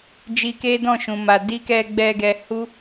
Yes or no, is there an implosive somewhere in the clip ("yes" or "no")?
no